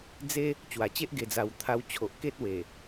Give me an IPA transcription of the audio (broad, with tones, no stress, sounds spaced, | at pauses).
d͡z e˦ | t͡ɕ w a˨˩ t͡ɕ e˦ ʔ ɡ e˧ d͡z a˧ w t̪ʰ a˧ w t͡ɕʰ o˨ ʔ k e˦ t̚ w e˨˩